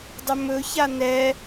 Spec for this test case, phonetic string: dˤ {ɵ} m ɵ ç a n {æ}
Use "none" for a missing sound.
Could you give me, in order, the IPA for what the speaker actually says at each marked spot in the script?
ɵ, ɛ

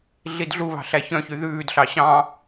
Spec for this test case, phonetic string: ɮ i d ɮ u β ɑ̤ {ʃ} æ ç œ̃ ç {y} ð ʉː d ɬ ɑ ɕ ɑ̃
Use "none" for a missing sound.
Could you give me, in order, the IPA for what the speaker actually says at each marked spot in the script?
ɬ, y

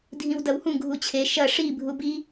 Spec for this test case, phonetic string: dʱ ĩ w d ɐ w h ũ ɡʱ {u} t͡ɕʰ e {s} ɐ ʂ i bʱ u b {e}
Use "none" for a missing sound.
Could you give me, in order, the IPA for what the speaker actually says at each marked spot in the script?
u, ʃ, i

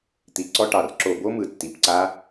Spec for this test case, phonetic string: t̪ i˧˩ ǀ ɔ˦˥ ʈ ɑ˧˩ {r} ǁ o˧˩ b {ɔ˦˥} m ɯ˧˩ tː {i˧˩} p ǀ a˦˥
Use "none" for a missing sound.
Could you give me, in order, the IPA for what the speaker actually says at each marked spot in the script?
r, o˦˥, i˧˩

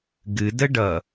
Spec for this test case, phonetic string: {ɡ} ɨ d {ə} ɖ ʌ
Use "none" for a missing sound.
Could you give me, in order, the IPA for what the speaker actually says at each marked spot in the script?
ɡ, ə

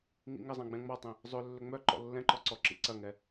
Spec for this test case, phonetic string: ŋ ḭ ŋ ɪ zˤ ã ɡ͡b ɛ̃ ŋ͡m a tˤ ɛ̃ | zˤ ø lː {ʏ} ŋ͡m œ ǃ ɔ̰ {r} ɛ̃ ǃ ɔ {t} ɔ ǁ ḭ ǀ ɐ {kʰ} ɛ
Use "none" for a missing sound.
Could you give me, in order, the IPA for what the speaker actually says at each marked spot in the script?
ʏ, lː, ǀ, ŋ

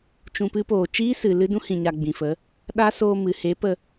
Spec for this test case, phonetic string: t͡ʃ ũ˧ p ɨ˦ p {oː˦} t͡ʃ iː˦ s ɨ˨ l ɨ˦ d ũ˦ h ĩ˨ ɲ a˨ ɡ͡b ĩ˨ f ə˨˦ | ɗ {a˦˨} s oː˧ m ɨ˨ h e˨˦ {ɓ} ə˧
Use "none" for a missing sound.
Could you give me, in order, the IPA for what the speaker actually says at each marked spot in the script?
oː˨, a˦, p

